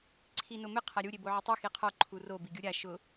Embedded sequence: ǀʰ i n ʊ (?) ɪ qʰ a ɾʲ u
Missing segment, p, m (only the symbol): m